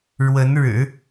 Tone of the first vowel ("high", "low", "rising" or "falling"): rising